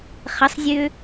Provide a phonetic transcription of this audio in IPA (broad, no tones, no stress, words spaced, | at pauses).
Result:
χəsˤzʲø